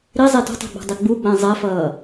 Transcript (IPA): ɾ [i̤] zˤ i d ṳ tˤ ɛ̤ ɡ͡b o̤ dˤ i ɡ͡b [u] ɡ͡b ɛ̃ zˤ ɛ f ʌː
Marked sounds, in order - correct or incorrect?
incorrect, correct

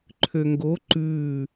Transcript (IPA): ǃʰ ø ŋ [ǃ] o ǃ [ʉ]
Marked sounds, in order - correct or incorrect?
incorrect, correct

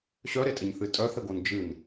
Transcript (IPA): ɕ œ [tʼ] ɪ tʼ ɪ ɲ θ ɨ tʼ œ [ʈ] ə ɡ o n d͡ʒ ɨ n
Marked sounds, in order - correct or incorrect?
incorrect, incorrect

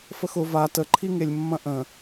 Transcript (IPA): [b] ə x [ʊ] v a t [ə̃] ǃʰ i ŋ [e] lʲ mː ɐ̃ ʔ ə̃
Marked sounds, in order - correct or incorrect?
incorrect, correct, incorrect, correct

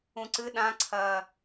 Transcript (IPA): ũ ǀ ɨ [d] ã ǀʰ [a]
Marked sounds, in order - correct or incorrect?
incorrect, incorrect

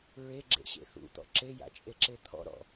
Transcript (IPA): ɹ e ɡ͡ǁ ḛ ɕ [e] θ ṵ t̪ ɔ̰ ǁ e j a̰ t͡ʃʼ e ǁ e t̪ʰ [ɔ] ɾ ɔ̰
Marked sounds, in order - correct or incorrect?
incorrect, incorrect

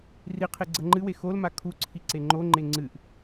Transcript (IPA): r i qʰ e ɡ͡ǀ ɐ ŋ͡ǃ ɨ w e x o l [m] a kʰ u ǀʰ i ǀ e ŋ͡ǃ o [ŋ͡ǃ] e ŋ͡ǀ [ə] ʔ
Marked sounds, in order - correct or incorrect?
correct, correct, incorrect

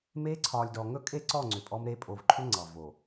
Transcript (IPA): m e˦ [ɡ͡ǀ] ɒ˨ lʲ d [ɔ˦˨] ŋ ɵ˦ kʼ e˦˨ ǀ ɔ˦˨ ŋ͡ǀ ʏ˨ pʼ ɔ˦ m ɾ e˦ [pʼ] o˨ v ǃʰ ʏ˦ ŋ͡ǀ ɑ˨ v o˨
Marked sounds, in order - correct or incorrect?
incorrect, incorrect, correct

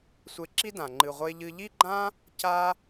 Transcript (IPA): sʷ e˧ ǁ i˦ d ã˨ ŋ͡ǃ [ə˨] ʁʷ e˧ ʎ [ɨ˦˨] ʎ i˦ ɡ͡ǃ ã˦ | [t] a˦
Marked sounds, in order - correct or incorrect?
incorrect, incorrect, incorrect

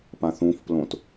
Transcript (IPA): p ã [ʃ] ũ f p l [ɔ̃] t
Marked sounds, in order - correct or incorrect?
incorrect, incorrect

